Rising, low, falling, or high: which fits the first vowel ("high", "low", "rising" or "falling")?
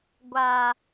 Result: low